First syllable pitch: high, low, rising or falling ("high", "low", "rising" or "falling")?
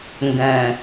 low